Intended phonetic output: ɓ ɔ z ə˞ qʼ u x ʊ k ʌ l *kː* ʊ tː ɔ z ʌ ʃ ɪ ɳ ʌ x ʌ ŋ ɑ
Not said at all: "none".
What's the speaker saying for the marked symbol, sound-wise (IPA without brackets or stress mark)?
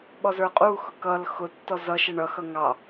x